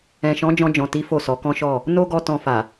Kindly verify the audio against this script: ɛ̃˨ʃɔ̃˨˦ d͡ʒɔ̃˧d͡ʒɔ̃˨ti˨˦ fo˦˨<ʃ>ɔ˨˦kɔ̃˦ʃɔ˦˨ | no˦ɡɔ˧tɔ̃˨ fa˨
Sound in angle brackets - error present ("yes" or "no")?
yes